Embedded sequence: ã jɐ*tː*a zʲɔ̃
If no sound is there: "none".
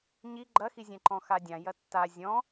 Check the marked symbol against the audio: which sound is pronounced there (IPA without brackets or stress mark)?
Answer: tː